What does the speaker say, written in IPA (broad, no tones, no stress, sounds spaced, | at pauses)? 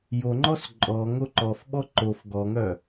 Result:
j o ŋ͡ǃ ɔ s ǃʼ ɔ ŋ o ǃ ɔ f ɓ ɔ ǃ o f ɡ ɔ ŋ œ